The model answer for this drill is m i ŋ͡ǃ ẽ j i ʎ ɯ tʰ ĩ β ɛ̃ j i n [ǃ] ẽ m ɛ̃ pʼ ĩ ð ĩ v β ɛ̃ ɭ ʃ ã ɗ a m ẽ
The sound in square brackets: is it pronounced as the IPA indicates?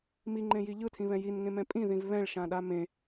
no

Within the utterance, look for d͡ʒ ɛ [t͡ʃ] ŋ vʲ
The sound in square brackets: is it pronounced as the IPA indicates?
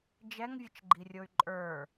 no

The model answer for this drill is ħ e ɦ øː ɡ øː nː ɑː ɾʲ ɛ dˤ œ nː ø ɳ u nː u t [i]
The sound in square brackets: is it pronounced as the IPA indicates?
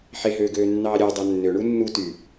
no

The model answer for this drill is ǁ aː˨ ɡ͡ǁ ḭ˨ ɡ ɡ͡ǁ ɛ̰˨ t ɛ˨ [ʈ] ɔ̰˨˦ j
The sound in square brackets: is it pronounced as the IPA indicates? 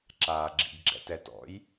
no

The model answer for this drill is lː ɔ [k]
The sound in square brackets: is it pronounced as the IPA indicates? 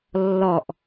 no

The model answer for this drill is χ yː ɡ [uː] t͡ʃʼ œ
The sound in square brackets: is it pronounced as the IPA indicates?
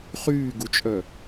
no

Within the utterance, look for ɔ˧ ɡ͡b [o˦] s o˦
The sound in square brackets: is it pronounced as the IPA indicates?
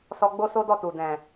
yes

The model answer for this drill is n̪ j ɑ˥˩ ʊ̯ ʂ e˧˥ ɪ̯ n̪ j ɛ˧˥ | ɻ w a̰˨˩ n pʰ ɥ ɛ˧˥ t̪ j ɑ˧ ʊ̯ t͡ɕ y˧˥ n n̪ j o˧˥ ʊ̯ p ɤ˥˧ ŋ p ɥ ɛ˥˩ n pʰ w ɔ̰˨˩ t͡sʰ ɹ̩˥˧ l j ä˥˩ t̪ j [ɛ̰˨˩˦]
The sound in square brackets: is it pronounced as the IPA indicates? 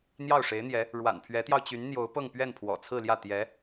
no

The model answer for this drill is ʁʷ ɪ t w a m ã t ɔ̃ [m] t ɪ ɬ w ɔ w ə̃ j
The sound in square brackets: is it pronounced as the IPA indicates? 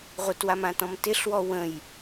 yes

